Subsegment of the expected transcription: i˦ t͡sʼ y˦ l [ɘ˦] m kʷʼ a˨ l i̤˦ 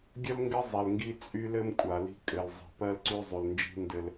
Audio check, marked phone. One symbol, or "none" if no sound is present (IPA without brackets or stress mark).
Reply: ɘ˦